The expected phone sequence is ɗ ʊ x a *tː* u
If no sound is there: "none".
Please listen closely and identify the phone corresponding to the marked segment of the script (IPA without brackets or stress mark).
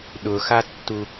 tː